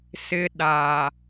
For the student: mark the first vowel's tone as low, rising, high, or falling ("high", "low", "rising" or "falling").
high